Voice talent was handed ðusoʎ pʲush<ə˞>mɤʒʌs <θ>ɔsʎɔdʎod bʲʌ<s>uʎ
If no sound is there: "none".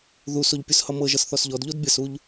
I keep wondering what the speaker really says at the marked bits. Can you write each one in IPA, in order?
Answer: ʌ, θ, s

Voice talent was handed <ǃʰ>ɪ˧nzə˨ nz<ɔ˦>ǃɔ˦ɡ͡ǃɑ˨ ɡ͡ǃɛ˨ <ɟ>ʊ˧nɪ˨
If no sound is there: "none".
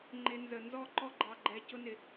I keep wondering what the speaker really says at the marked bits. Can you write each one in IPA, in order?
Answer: ŋ͡ǃ, ɔ˦˨, c

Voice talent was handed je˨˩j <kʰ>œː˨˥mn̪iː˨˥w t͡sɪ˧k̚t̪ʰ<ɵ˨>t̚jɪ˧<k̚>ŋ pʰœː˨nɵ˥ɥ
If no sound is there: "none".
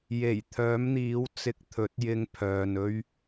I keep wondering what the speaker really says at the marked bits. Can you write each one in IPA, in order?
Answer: t̪ʰ, ɵ˨˥, none

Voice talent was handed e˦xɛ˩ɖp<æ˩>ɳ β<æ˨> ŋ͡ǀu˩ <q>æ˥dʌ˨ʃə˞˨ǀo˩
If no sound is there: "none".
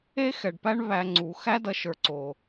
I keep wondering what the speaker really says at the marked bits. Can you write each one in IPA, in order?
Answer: æ˦, æ˨, x

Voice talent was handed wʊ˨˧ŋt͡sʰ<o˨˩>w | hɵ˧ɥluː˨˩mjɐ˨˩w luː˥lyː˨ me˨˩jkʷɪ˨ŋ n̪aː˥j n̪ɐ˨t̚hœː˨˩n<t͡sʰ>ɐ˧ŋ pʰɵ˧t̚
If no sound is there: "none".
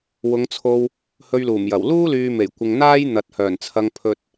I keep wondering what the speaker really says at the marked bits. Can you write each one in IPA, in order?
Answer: o˧, t͡sʰ

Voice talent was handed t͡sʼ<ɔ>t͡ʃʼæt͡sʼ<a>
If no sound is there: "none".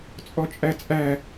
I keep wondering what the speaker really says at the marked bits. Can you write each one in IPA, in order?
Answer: ɔ, æ

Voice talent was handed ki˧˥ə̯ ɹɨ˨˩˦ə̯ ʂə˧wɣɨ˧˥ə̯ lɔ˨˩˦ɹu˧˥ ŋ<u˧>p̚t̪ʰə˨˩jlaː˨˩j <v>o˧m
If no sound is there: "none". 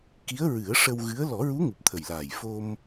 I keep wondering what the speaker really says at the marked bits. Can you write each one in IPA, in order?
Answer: u˨˩, f

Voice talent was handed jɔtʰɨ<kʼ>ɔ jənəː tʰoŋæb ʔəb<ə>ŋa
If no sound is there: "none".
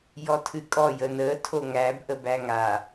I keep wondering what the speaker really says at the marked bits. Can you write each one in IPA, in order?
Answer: kʼ, æ

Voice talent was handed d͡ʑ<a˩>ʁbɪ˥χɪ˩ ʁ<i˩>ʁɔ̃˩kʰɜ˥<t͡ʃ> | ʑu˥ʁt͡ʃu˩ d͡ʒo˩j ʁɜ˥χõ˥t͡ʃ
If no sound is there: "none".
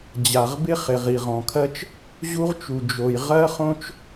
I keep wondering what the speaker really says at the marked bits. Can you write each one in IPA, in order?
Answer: a˩, i˩, t͡ʃ

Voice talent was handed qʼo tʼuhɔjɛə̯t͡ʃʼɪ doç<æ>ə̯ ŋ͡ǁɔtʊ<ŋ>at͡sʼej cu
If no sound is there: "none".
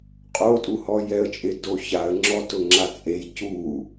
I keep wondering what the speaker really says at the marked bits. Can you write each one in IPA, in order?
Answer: a, ŋ͡ǁ

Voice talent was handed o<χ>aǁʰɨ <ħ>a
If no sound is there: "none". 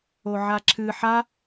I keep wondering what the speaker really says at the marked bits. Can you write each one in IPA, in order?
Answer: ʕ, ħ

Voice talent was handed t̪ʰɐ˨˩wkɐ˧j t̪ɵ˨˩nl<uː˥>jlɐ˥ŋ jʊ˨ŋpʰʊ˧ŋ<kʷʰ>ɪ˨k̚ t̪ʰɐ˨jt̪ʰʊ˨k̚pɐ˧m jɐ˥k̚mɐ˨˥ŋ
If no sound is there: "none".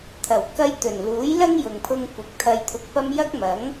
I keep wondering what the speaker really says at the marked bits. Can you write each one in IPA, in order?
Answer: uː˨˥, kʷ

